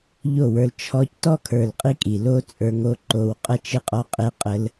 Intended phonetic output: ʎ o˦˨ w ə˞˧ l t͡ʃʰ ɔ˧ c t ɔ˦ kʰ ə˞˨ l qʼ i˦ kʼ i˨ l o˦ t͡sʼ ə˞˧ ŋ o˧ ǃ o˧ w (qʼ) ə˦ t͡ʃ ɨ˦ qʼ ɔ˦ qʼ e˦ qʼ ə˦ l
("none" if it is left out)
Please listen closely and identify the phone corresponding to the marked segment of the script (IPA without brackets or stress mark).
qʼ